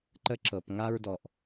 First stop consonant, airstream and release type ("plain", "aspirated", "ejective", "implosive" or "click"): click